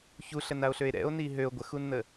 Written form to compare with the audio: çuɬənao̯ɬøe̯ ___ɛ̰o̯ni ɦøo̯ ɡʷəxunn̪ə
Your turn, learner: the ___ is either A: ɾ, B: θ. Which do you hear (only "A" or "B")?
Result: A